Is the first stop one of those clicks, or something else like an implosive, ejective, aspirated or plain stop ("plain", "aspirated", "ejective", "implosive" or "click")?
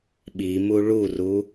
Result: implosive